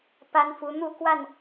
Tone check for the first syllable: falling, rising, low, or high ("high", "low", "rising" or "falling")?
high